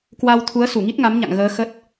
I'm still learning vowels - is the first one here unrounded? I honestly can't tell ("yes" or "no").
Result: yes